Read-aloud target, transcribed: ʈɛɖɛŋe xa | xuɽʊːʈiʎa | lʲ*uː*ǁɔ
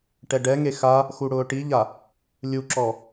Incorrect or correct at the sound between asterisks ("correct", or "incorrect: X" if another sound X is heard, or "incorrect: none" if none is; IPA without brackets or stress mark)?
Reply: incorrect: u